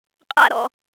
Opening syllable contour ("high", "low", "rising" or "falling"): high